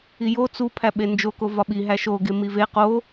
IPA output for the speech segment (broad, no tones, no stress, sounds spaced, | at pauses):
i j o t͡s u pʰ æ ɓ e n d͡ʒ o k o v ɒ ɓ i ɦ æ ʃ o ɡ e m i v e q o